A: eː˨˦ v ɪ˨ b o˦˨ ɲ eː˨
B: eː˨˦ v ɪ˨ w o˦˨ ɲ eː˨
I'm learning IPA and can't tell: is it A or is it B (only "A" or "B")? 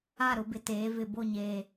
A